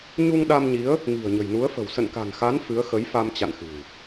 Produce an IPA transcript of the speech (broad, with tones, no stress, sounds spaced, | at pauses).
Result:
ɲ u˧ ŋ ɗ a˧ m ɲ i˨˦ ə̯ | ŋ i̤˨˩ ə̯ ɲ ə̤˨˩ j n u˨˦ ə̯ f ə̤˨˩ w s ə̰˧˨ n k a̤˨˩ n x a˨˦ n f ɨ˨˦ ə̯ x ə˨˦ j f a˧ m t͡ɕ a̰˧˨ n x ɨ̤˨˩ w